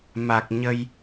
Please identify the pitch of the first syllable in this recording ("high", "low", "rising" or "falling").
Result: low